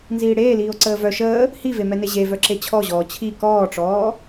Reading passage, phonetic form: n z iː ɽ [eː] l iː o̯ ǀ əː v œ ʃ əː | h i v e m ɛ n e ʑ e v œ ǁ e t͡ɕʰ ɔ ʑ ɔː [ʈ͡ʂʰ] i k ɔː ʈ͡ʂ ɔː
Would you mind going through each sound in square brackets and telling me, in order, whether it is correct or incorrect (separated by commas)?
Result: correct, incorrect